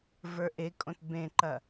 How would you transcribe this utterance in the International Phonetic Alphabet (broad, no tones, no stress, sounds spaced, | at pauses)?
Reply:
v ə˞ ʔ e kʼ õ t b ẽ ǃ ɐ